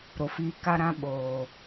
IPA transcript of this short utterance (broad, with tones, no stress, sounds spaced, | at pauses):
ɾ o˨˦ f iː˧ k a˦ ɾ ã˦ ɓ oː˨